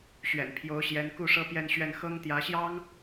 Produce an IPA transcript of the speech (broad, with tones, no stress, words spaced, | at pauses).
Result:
ɕɥɛ̰˨˩npʰjo˧˥ʊ̯ɕjɛ˧˥n ku˥˧ ʂɤ˥˧pjɛ˥˧nɕɥɛ˥˩n xɤ˥ŋt̪jä˧˥ɕjɑ˥ŋ